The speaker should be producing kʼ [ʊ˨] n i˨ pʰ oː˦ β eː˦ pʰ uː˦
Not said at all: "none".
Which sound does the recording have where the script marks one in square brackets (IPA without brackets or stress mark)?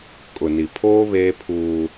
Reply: ʊ˨